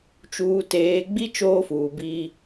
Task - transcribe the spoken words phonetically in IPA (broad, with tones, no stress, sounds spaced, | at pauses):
t͡ʃ uː˨ t eː˨ ɡ͡b i˦ t͡ʃ oː˦ f uː˨ b iː˦